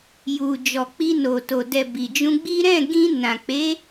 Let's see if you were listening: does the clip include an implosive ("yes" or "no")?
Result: no